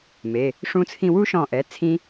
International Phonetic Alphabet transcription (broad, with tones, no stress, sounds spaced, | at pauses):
m e˩˧˩ | ʂ ũ˧ t͡sʰ ĩ˧ w u˦˥ ʃ ɔ̃˧˩ ʔ ɛ˩˧˩ t͡sʰ ĩ˦˥